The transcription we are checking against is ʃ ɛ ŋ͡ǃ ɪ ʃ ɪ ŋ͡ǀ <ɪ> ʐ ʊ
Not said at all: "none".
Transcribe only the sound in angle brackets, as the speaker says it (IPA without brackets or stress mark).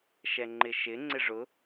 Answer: ɪ